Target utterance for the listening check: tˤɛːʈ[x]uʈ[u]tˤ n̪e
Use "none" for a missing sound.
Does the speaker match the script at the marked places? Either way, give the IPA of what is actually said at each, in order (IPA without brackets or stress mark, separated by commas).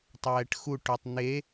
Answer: x, o